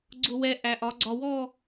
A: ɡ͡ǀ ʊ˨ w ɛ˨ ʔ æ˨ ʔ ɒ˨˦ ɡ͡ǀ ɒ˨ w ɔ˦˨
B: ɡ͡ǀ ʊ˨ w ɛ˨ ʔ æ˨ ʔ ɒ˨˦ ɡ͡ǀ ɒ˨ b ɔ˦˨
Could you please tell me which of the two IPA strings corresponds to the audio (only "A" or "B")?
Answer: A